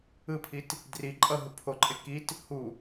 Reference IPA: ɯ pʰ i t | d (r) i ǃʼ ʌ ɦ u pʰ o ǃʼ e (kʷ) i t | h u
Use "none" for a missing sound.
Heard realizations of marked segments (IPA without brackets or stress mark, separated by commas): r, k